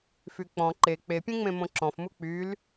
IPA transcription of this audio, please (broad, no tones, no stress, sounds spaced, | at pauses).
f y k͡p ɔ̃ ǃ e k͡p e pʲ ẽ ŋ͡m ẽ m õ ǁ ɔ̃ f m u k͡p y l